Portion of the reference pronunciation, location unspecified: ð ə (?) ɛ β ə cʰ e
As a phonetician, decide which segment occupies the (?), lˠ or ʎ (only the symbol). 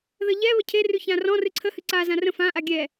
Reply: ʎ